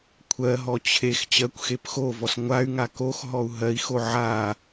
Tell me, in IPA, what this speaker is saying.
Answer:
kʷʰ ɜ ɦ ɔ t͡ɕʰ e x t͡ɕ ɜ kʷ x e p x o v ɔ s ŋʷ a y̯ ŋ a k o x ɦ ɔ u̯ ɦ ɜ i̯ x o ʕ a

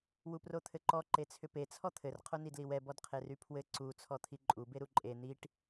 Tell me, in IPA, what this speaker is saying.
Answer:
w u p r o t̪ʰ ɘ ǃ ɔ ǃ e t͡sʰ ʏ p e t͡sʰ ɔ t̪ʰ ɘ r qʰ o n i d l i w ɛ b ɔ d qʰ e r y pʰ w ɘ ǀ u t͡sʰ ɔ t̪ʰ i ǃʼ u b e ɾ u ǃʼ e n̪ i ʈ

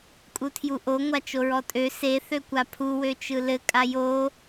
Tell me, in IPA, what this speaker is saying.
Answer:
kʼ u tʰ j u ʔ o ŋʷ a t͡ʃ o ɹ ɔ tʼ ø s e θ ø kʷ a pʰ u w ø t͡ʃ ɯ l ɘ kʼ a j o

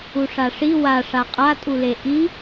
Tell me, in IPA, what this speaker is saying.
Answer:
u ʂ a ʂ i w a ʂ a qʼ a tʼ u l e ʔ i

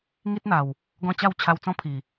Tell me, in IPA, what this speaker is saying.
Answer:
ŋ i˦ t̚ n̪ a˨˩ w | ɡ ɔ̃˥˧ t͡ɕ a˥˧ w t͡ɕʰ a˧ w t͡s ɔ̃˦ pʰ i˨˩

